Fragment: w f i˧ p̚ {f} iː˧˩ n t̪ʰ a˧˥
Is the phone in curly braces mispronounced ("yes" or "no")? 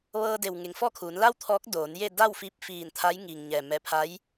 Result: no